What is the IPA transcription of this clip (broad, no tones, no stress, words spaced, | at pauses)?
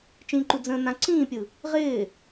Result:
t͡ʃĩǃu d͡zə̃ːnãǀĩːpʲɯ | ʁɪː